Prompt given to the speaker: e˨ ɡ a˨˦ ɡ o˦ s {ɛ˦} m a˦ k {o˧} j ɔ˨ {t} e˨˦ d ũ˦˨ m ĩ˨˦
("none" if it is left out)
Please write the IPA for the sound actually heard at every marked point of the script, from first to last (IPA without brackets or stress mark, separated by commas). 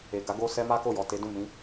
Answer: ɛ˦, o˦˨, t